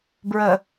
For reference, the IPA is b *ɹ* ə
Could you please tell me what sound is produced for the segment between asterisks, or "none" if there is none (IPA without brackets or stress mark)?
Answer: ɹ